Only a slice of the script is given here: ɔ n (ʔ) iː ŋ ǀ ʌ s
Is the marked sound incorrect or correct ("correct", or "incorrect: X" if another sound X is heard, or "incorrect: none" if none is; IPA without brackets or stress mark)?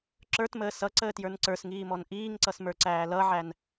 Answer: correct